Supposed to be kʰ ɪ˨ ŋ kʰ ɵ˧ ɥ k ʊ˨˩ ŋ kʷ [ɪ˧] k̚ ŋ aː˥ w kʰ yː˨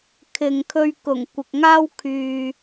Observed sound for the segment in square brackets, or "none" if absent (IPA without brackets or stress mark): ɪ˨